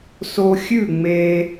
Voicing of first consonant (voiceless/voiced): voiceless